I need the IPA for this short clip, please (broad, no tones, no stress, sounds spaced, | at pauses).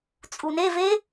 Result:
t͡sʼ u n e v e